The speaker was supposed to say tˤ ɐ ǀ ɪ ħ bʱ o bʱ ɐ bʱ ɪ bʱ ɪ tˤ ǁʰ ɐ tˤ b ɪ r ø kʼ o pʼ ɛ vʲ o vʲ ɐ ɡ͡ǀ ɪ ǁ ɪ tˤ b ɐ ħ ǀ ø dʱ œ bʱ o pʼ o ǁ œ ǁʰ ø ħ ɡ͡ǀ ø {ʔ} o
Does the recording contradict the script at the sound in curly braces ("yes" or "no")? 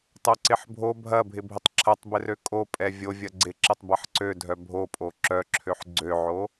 yes